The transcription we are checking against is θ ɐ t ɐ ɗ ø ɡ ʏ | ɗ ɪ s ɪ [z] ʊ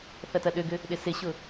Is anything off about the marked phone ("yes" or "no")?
yes